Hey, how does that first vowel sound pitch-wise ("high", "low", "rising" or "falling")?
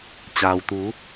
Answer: low